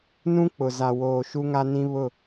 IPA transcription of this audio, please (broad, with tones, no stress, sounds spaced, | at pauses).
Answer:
n ũ˦ k͡p ʊ˨ z a˨ w oː˨ ʃ u˦ ŋ a˦ n ĩ˦ β ʊ˦˨